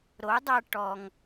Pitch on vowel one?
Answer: rising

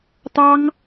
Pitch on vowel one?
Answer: high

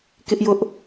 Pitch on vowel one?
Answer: high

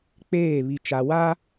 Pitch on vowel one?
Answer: falling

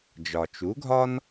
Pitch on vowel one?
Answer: low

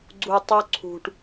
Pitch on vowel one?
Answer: low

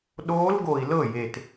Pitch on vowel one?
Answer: rising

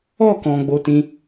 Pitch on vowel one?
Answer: falling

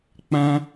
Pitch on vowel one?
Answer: high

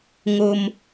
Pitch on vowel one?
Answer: low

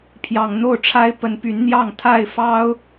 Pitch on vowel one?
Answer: low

